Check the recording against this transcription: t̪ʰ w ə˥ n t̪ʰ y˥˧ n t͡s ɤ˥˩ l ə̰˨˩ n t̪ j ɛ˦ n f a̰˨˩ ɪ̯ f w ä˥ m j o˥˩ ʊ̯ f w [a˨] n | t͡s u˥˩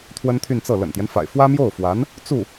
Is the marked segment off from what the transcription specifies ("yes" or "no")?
yes